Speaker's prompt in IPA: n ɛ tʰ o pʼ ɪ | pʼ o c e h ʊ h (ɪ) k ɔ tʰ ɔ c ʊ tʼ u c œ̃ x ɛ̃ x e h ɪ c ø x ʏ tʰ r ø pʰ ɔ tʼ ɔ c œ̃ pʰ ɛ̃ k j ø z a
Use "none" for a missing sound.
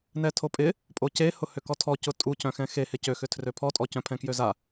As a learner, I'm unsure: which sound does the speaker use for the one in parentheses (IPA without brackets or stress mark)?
ʏ